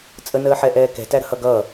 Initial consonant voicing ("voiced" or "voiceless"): voiceless